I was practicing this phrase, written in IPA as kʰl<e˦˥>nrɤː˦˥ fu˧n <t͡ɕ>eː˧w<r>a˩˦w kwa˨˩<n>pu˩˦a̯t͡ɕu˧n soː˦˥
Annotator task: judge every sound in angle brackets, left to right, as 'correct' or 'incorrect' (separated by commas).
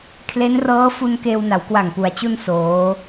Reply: correct, incorrect, incorrect, incorrect